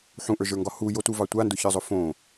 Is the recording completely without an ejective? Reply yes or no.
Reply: yes